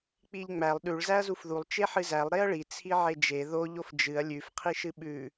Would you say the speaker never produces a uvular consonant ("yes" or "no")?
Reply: no